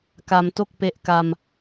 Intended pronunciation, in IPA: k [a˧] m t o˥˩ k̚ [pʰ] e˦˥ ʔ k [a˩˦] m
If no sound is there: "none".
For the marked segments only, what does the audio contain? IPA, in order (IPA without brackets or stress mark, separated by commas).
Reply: a˧, p, a˧